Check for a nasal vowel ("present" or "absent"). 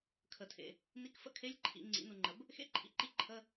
absent